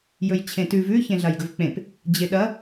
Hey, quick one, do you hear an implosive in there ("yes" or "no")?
yes